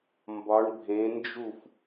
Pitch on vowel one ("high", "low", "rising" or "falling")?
rising